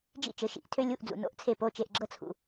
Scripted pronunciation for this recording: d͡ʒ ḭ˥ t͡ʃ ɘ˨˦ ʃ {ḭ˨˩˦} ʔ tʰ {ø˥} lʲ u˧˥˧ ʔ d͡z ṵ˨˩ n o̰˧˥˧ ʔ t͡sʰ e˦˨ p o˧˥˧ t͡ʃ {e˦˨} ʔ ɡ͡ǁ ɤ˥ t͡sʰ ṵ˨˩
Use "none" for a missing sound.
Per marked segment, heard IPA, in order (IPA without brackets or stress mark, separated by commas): ḭ˨˩˦, ø˥, e˦˨